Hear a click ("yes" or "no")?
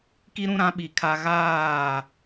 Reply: no